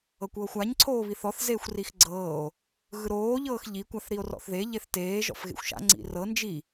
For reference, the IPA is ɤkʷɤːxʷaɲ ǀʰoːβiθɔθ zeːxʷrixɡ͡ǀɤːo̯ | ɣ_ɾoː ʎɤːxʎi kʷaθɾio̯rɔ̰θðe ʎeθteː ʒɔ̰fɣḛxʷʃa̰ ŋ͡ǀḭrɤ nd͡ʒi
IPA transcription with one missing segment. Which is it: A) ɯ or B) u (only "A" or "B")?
A